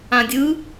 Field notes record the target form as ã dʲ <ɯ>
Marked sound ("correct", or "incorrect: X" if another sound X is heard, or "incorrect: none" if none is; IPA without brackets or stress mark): correct